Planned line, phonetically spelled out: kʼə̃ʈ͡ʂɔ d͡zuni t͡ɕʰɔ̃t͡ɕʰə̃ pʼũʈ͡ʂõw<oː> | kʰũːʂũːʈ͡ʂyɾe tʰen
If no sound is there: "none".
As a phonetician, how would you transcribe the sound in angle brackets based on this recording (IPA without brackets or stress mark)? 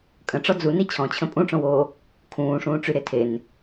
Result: oː